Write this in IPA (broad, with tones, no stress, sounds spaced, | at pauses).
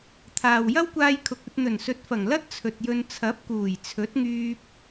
t̪ʰ aː˨ w j ɐ˥ w kʷ aː˧ j kʰ ʊ˨ k̚ ɵ˧ t̚ n̪ ɵ˨˩ n s ɵ˨˥ t̚ f ɐ˨˩ ŋ l ɐ˥ t̚ t͡sʰ ɵ˨ t̚ j ɵ˧ n t͡sʰ ɐ˨˥ p̚ k uː˨˩ j t͡sʰ ɵ˨˥ t̚ ŋ yː˧ p̚